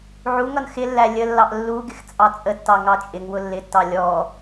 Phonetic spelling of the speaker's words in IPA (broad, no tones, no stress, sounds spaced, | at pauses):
ʕ u ŋ ʌ n x ɪ lː æ lʲ ə lː ɑ ʔ lː u ɡ ɪ x t͡sʼ ɑ t͡sʼ ə tː ɑ ŋ ɑ t͡ʃʼ ɪ ŋ w ʊ lː ɪ tː ɑ lʲ ɔ